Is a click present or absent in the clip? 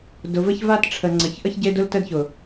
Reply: present